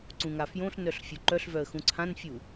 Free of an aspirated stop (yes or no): no